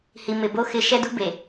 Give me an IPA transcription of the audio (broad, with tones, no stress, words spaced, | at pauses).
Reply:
hi˨mɪ˨ bo˦ xɪ˦ ʃɛ˦dṳ˦ be˨